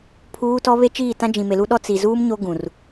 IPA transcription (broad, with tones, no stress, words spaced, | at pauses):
pʰuː˦tɔ˦ βe˦t͡ʃiː˦˨tã˦ d͡ʒĩ˨me˨lu˦ɗɔ˦ t͡si˨zuː˦m ɲo˦ɡũ˨r